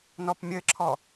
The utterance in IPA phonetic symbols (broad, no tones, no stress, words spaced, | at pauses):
nɔpmʲɘǁʰɔ